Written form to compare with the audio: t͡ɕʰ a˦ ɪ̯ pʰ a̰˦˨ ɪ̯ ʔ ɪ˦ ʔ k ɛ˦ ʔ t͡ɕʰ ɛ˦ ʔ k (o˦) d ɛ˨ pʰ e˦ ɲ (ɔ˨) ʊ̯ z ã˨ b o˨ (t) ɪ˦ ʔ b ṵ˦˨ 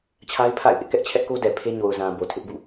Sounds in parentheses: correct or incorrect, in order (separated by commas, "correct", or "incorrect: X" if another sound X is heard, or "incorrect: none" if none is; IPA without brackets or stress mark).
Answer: correct, incorrect: o˨, incorrect: tʰ